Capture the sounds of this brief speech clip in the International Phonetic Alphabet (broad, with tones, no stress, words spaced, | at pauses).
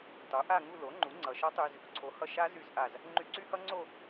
tˤu˩˥ ʔa˥˧ŋu˥˧ lo˩˥ŋ͡ǃu˩˥ ŋ͡ǀʌ˧ ʃʌ˦˥tˤy˧z | ǀʰo˩˥hʌ˧ʃa˦˥ zy˧˩zʔa˧˩z | ŋ͡ǃy˧ǀy˦˥hʌ˦˥ŋ͡ǀo˥˧